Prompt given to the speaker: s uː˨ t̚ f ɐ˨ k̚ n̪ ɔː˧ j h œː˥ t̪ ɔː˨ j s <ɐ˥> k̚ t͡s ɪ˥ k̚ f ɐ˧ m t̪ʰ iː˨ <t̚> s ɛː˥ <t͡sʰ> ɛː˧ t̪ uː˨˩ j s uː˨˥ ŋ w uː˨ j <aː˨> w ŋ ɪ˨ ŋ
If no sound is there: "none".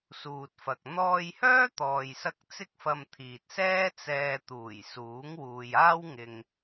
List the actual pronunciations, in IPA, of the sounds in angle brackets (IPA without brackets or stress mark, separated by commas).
ɐ˧, t̚, t͡s, aː˥